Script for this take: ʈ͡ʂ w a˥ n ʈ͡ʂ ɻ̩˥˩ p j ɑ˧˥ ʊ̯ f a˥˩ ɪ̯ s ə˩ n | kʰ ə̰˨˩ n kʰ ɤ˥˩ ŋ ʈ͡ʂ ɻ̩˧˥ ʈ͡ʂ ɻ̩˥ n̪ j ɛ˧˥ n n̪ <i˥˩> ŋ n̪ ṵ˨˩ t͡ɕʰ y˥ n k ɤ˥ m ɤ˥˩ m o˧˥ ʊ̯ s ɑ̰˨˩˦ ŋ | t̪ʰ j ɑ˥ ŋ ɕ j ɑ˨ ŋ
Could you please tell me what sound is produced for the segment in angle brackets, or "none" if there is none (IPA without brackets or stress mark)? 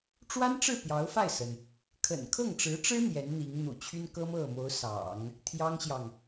i˧˥